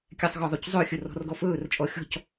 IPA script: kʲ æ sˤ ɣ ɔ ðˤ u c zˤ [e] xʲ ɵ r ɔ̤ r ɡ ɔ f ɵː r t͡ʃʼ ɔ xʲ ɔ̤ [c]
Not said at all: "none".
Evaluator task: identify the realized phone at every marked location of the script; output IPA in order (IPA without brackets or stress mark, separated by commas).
ø, c